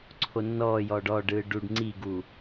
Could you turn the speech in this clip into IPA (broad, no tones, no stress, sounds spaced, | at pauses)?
ǀʰ o nː ɔː j ɔː ɖ ɔ ɖ ɯː ɖ u ɖ ŋ͡ǀ i ɡ uː